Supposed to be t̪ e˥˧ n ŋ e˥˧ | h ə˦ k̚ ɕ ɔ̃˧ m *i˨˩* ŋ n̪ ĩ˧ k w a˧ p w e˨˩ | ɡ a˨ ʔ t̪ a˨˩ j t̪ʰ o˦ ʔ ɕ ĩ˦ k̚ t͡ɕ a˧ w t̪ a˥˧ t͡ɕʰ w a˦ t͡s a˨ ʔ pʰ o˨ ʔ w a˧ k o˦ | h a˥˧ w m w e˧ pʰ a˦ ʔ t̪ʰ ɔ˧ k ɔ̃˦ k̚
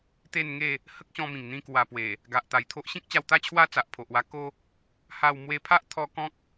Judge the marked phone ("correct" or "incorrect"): incorrect